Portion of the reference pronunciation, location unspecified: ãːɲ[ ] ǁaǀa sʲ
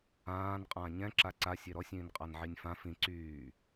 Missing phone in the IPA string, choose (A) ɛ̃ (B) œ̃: A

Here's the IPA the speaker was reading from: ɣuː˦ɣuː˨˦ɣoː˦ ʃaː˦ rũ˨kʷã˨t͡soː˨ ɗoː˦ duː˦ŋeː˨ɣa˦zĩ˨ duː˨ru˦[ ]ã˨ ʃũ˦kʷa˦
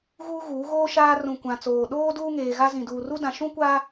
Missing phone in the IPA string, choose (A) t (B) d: B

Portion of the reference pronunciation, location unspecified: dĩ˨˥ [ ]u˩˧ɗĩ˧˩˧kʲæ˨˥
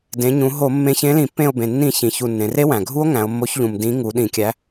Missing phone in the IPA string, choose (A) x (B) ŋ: B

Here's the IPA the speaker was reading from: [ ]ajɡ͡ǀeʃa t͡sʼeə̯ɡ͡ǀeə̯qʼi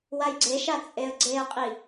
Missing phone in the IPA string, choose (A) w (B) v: A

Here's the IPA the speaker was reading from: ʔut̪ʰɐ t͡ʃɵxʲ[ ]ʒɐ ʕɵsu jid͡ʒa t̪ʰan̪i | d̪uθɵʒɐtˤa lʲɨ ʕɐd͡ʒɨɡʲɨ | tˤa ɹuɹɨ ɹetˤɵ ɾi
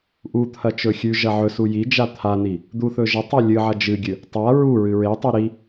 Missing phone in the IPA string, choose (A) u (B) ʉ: B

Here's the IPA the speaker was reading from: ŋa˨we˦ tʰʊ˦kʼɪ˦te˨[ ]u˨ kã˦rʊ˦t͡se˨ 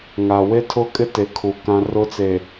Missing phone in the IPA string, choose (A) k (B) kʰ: B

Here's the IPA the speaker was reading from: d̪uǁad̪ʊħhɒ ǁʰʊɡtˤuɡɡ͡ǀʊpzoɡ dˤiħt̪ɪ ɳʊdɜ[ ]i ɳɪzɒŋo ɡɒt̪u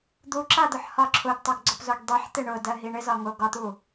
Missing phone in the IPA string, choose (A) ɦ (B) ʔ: A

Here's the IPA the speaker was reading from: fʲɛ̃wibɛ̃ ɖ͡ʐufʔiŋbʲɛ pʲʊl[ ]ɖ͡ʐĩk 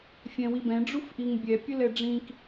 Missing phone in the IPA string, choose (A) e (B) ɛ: B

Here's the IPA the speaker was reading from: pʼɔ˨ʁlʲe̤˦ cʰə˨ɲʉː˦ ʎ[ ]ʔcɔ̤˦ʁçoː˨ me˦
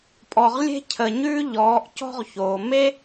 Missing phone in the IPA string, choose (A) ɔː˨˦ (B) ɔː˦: A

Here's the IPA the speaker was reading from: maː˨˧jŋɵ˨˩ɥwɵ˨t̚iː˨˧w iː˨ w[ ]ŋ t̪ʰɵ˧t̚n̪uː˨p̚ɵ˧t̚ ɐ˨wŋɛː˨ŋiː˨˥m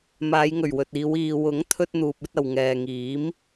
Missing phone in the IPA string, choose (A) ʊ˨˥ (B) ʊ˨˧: A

